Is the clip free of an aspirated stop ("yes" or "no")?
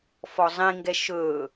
yes